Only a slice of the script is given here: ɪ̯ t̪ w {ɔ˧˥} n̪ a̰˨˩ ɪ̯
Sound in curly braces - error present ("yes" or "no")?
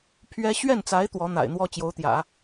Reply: no